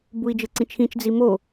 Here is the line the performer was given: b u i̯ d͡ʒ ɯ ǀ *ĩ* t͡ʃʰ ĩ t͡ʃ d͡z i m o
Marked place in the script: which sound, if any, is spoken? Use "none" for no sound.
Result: ĩ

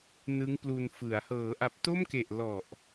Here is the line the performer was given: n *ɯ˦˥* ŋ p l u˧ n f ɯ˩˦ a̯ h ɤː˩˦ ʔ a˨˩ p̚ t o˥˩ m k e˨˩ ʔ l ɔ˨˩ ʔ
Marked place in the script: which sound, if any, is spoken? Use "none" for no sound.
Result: ɯ˦˥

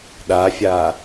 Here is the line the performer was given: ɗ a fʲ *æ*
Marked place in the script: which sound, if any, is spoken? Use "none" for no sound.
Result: a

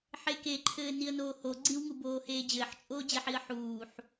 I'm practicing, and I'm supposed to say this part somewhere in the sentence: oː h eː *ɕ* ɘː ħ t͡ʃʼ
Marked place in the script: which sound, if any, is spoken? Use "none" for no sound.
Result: d͡ʑ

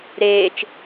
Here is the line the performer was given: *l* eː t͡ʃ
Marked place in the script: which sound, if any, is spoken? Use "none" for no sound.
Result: ɾ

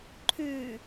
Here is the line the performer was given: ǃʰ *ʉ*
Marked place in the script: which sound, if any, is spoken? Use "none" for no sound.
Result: ʉ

